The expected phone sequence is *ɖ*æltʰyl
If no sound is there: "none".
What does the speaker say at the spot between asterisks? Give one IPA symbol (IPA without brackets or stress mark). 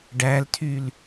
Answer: ɖ